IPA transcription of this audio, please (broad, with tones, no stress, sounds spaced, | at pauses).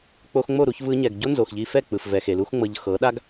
k͡p o˧ x ŋ͡m o˦˨ ɾ u˧ ç v ɯ˧ ɲ ɛ˨ ɡ ɟ o˦ n z o˨ x ʎ i˧ f ɛ˦˨ k͡p ɯ˨ f v ɛ˨ x e˨ l u˦ x ŋ͡m ɤ˧ ʎ x ɤ˨˦ ɗ a˦ ɡ